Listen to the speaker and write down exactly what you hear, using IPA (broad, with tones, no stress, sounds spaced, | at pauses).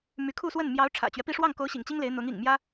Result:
m y˧˥ kʰ u˥˧ s w ə˥˩ n m j ɑ˧˥ ʊ̯ ʈ͡ʂʰ ä̰˨˩ t͡ɕ ɥ ɛ˦ p i˥˧ ʂ w ɑ˥˩ ŋ k o˧˥ ʊ̯ ɕ ḭ˨˩ ŋ t͡ɕ i˥ ŋ l e˧˥ ɪ̯ n̪ ʊ˧˥ ŋ ḭ˨˩ ŋ m j ä˥